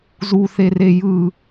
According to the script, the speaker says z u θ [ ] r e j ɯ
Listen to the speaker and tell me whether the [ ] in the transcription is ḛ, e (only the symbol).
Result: e